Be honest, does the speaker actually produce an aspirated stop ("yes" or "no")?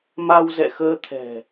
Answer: yes